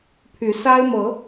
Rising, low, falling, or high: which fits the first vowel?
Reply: rising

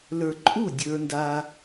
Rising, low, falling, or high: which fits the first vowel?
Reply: low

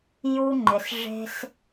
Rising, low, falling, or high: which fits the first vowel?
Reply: high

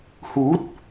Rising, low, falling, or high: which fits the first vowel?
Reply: rising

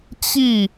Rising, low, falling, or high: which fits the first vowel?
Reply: falling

